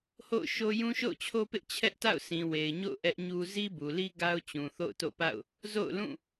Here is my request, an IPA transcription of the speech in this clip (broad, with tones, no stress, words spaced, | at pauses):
ho̰˦˨ʊ̯ʃo˦ jũ˦ʃo̰˦˨ʊ̯t͡ɕʰo˦pɪ˦ʔ t͡ɕʰɛ˦ʔta̰˦˨ʊ̯ sĩ˨we˨ɪ̯ɲo̰˦˨ʊ̯ ʔɛ˦ʔɲu˦ zi˦bu˨li˦ ɡa˦ʊ̯ t͡ɕũ˨ θo̰˦˨ʊ̯to̰˦˨pa̰˦˨ʊ̯ | zo̰˦˨ʊ̯lũ˦˨